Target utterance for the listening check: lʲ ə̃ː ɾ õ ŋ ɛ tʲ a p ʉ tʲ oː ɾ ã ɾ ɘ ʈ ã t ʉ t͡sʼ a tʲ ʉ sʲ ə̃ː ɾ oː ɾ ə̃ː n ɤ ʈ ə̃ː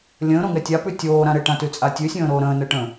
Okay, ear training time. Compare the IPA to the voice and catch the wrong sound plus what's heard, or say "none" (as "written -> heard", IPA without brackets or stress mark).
none